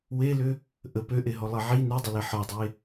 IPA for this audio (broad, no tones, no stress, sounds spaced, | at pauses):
w e l ʏ | ʔ ə p ø ʔ e ɦ ɔ lˠ e ʕ i n ø dˤ ʏ l e ħ ɒ dˤ e